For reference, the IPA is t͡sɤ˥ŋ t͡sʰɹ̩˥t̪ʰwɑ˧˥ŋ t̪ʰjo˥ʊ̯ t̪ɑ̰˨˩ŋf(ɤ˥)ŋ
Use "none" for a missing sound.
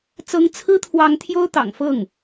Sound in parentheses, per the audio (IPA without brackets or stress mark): ɤ˥˩